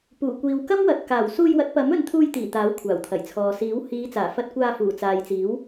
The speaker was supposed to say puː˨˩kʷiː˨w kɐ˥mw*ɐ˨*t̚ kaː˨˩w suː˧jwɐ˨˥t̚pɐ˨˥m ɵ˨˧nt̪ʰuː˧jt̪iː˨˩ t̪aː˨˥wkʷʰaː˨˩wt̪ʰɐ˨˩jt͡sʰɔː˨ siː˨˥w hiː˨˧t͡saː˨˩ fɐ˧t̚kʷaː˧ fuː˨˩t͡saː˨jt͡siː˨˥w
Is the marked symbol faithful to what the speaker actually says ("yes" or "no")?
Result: yes